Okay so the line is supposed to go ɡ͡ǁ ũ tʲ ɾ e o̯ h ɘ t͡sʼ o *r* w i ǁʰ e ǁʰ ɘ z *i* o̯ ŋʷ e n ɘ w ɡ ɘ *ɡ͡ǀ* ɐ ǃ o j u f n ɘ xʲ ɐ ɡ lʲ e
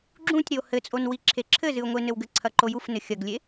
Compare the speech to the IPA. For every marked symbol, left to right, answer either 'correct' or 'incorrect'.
incorrect: n, incorrect: ɨ, incorrect: ǀʰ

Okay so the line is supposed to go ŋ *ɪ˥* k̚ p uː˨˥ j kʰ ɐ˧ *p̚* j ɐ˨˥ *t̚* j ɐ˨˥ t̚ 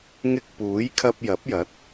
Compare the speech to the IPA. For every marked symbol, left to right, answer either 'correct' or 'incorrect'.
incorrect: ɪ˧, correct, incorrect: p̚

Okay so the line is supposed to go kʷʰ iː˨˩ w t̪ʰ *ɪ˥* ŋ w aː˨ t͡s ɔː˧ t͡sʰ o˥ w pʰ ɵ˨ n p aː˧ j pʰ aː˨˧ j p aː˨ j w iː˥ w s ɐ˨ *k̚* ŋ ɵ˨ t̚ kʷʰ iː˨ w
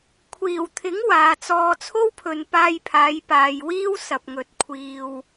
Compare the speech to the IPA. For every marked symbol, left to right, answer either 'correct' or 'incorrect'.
incorrect: ɪ˨˥, incorrect: p̚

